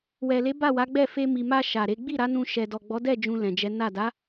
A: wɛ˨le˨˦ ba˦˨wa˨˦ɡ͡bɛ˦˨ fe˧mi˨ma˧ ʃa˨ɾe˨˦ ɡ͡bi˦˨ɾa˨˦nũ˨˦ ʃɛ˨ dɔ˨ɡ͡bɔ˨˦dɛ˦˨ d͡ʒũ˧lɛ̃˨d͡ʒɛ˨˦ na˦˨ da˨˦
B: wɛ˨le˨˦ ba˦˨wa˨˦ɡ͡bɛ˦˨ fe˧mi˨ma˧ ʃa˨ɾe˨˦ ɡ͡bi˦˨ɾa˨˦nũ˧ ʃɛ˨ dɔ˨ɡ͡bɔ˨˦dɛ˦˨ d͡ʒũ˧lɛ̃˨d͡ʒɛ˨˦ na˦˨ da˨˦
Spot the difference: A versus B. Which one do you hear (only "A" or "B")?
B